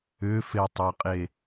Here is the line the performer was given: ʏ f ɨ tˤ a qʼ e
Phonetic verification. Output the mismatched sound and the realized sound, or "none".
ɨ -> e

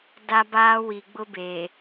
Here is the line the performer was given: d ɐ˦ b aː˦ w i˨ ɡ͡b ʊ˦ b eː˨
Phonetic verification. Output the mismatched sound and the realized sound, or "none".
ɐ˦ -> a˦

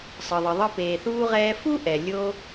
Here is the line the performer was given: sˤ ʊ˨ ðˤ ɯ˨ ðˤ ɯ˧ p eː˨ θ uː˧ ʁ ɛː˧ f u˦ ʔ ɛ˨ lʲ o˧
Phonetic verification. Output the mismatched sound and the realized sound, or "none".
ʊ˨ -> ɯ˨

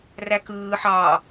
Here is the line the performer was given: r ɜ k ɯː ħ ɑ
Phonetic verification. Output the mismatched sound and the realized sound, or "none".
ɜ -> æ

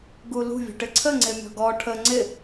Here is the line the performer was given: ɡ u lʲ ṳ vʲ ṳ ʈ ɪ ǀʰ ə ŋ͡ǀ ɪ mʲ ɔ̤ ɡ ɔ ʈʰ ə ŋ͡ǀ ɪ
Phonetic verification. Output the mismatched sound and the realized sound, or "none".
lʲ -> l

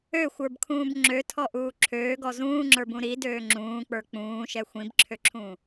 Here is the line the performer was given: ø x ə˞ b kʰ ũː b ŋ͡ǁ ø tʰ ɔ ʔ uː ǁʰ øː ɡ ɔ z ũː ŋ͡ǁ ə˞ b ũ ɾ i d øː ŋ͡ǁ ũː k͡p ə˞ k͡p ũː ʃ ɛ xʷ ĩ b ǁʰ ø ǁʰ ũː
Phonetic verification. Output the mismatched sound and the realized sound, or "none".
x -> xʷ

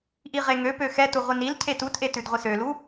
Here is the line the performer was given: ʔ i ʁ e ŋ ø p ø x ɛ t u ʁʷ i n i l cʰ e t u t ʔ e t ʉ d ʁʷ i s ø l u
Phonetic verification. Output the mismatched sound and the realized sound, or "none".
none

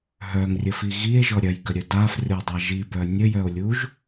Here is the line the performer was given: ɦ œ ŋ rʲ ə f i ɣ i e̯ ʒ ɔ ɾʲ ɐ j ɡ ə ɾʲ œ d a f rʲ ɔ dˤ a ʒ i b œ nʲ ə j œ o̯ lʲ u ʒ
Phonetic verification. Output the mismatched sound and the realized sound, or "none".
none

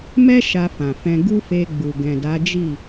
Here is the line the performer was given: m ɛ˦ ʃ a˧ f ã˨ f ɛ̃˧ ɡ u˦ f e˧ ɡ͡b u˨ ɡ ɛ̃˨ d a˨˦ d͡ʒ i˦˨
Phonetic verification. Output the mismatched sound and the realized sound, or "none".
none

